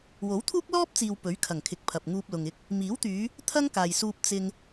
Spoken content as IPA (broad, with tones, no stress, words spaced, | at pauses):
wo˨˥wt̪ʰuː˥k̚lɔː˥p̚t͡siː˨w pɵ˨˥ɥkʰɐ˨˩ŋkʰɪ˨k̚ pʰɐ˨p̚ŋuː˧p̚ lʊ˨ŋɪ˧k̚ | miː˨˥wt̪yː˨˧ | t̪ʰɐ˥ŋ kaː˨jsuː˧p̚ t͡sɪ˧ŋ